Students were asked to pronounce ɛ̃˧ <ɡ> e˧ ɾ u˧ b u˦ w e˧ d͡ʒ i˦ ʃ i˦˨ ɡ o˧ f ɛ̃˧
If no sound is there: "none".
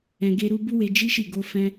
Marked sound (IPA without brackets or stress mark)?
ɡ